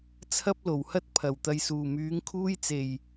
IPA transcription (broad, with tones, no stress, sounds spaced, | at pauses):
t͡sʰ ɐ˥ p̚ l o˨˩ w h ɐ˥ t̚ pʰ ɐ˨˩ w t̪ ɐ˨ j s uː˨˩ m yː˨˥ ŋ kʰ uː˥ j t͡s e˨˩ j